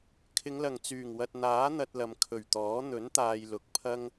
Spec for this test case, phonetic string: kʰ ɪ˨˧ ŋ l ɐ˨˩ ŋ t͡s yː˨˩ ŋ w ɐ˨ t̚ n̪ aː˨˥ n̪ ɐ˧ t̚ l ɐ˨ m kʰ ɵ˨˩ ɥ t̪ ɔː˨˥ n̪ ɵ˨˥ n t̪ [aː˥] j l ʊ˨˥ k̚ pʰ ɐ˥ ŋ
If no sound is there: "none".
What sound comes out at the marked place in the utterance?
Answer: aː˨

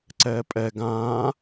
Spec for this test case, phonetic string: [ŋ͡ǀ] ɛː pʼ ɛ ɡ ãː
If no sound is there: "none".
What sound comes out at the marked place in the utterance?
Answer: ǀ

